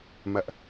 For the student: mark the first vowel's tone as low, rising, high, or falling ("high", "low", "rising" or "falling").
high